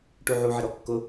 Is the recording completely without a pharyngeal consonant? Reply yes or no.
no